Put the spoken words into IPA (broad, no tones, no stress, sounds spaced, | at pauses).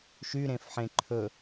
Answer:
ʃ y ɾ ẽ f ħ ẽ ǃʰ ɵ